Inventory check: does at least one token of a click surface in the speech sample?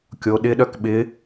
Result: no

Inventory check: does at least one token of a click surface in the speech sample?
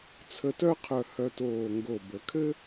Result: no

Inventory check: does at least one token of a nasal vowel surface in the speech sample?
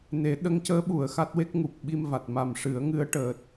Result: no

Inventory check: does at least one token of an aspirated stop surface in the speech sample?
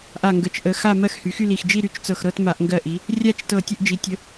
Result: no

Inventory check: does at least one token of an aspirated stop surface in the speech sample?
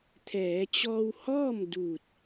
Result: yes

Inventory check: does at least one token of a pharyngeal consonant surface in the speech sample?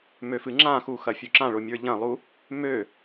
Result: no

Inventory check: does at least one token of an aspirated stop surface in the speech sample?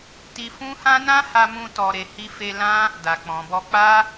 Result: no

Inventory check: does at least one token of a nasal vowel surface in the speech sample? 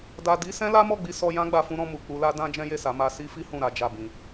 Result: yes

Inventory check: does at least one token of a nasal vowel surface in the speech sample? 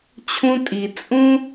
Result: yes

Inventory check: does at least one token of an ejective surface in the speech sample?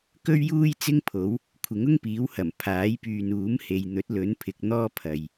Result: no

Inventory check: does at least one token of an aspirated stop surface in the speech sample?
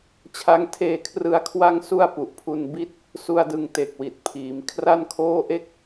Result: yes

